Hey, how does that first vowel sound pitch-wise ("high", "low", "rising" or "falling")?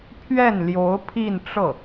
falling